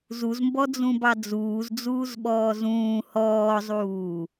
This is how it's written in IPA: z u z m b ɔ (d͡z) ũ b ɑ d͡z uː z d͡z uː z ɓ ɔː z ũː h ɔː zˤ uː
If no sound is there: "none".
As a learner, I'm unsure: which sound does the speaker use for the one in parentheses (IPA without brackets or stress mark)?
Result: d͡z